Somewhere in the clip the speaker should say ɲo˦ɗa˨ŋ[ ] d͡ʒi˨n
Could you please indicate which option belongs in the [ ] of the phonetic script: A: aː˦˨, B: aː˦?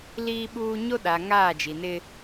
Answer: A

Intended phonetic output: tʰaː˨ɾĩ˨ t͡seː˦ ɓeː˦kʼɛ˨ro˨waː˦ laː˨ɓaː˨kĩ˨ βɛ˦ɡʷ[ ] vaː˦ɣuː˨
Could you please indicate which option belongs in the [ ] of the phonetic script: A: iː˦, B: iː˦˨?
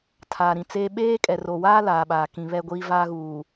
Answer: A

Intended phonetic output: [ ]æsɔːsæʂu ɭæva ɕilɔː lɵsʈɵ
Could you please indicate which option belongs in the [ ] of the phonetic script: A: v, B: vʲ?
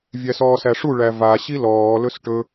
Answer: B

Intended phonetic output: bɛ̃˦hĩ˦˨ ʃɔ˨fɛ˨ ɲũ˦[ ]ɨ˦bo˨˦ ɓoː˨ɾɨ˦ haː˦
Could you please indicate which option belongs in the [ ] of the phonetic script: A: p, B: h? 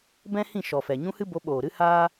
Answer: B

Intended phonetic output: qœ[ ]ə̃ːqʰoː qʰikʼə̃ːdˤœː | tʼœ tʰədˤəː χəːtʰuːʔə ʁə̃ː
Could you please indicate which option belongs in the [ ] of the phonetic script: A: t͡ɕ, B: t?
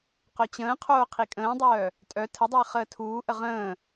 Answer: A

